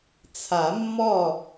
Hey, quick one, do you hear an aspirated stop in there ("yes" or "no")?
yes